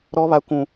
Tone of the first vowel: high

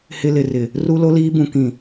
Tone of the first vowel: high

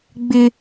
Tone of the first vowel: high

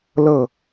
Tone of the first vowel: falling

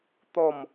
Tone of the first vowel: falling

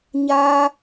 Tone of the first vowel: high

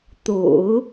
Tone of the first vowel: low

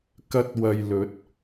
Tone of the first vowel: high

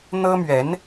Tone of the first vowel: high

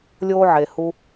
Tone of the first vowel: high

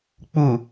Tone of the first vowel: low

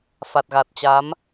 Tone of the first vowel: low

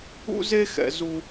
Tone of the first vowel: high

